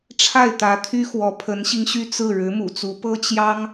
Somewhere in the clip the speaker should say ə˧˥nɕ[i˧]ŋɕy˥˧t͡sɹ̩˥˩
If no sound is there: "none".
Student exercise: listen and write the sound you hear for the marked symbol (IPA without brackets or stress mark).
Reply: i˧